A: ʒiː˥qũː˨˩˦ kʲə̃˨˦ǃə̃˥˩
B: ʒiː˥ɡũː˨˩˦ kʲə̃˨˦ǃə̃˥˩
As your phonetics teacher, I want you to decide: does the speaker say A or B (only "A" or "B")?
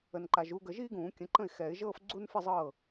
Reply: B